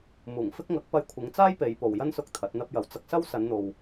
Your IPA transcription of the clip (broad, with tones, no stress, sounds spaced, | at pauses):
m uː˨˩ ŋ f ɪ˥ k̚ ŋ ɐ˨˥ k̚ p ɐ˧ j kʷʰ ɪ˨˧ ŋ t͡s aː˥ j p e˨˧ j p o˨ w j ɐ˥ n s ʊ˧ k̚ t̪ʰ ɐ˨˥ t̚ n̪ ɐ˥ p̚ j ɐ˨˧ w t͡s ɐ˥ k̚ s ɐ˥ w s ɐ˨˧ n n̪ o˨ w